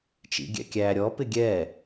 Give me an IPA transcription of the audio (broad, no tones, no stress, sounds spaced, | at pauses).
t͡ʃ ḭ ɡʲ ɛ̰ kʲ æ ɾʲ ɔ p ɪ ɡʲ ɛ